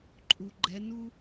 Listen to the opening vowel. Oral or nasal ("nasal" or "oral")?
oral